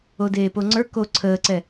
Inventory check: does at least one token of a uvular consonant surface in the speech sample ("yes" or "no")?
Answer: no